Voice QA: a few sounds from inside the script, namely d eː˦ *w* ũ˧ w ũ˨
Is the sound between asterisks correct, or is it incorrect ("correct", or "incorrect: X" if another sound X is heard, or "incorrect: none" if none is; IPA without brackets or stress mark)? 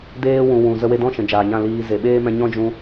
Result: correct